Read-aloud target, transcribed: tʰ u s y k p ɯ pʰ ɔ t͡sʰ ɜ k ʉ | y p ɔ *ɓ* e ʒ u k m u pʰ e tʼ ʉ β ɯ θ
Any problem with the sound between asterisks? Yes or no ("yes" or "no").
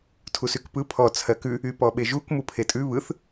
no